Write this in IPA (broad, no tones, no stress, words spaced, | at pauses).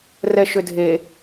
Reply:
rɛʃʏdʱe